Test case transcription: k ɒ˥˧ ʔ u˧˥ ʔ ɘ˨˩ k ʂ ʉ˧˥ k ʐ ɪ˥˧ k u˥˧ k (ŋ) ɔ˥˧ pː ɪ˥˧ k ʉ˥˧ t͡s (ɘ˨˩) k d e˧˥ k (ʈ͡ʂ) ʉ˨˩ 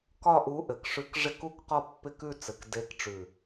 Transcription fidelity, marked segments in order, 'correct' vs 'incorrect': incorrect, correct, correct

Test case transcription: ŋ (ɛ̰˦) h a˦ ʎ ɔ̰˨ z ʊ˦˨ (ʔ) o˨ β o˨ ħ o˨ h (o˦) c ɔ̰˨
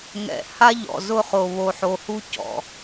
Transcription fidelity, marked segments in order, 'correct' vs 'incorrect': incorrect, incorrect, incorrect

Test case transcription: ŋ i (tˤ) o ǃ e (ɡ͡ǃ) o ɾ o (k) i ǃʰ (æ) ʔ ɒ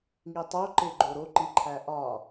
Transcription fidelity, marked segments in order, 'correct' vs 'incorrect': correct, correct, incorrect, correct

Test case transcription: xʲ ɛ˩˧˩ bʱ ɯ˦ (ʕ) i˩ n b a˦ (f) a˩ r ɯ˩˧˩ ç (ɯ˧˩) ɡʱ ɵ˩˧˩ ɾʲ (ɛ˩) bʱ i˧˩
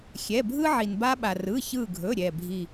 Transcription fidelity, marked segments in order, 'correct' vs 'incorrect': correct, incorrect, correct, incorrect

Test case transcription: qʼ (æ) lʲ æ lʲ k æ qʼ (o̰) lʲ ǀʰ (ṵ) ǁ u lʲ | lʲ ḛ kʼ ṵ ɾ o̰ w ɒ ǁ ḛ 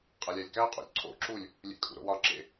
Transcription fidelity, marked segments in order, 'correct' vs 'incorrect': correct, incorrect, incorrect

